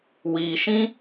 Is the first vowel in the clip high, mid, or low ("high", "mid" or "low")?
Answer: high